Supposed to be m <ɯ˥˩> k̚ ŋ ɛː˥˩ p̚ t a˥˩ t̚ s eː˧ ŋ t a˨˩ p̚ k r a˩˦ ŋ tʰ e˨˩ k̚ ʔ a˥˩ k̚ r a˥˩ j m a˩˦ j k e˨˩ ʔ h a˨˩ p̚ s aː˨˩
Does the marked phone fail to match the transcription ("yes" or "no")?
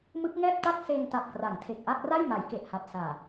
yes